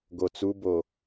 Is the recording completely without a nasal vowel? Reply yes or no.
yes